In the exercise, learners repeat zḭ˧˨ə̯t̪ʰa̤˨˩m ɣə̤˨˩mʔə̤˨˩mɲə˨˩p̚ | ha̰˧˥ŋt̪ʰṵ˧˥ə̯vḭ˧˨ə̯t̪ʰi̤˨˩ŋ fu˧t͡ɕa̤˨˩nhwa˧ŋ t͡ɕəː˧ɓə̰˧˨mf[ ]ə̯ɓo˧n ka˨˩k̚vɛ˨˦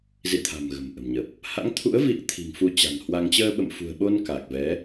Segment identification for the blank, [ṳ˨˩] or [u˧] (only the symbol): ṳ˨˩